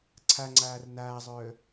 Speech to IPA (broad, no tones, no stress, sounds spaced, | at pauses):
ǀʰ a ŋ͡ǀ aː r n aː zˤ œː